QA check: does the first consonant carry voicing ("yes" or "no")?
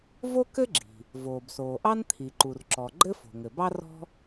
yes